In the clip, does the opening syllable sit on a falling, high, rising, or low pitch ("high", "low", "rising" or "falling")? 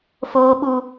high